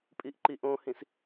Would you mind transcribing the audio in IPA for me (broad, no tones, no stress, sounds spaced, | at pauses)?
pʼ i ʔ ǃ i ʔ õ h ĩ s